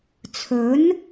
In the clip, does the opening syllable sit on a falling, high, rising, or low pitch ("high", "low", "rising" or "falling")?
rising